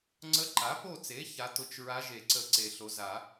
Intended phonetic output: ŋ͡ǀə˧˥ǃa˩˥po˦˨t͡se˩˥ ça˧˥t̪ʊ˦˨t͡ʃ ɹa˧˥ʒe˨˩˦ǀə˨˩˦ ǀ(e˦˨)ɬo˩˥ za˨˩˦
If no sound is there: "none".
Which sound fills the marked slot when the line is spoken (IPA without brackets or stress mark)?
e˨˩˦